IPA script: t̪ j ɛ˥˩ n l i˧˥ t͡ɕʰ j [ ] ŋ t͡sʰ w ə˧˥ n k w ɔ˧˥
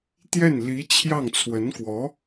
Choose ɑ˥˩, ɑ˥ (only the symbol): ɑ˥˩